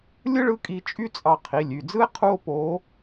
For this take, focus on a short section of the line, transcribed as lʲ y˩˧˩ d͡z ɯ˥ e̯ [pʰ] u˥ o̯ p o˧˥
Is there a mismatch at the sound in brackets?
yes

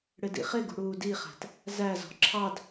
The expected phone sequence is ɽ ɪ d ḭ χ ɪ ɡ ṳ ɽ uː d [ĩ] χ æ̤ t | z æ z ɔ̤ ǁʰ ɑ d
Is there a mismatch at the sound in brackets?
yes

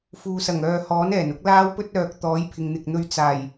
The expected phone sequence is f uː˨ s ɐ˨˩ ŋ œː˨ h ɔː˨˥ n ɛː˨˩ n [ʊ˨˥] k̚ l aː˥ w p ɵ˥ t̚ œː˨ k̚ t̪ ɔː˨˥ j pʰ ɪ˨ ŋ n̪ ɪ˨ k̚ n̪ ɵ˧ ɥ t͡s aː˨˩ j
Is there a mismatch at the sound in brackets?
no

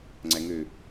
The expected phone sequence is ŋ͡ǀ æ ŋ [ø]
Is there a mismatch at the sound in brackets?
no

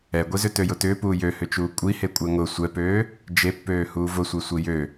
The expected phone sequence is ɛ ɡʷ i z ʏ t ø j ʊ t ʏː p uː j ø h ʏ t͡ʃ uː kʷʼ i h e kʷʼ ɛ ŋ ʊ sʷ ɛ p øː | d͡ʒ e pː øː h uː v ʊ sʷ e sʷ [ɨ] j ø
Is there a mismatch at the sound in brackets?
yes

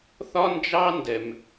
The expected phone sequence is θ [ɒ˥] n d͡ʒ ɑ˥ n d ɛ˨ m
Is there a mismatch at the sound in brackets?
no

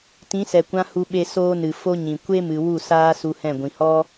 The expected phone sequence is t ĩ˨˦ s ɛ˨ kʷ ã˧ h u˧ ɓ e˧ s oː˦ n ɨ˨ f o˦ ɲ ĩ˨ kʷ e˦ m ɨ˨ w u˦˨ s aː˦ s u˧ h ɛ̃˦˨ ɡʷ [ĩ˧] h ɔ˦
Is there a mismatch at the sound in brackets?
yes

